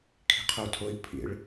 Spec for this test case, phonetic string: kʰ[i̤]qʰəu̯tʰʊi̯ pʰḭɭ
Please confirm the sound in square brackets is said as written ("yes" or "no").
yes